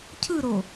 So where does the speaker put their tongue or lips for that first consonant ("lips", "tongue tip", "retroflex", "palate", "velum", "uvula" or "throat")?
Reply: palate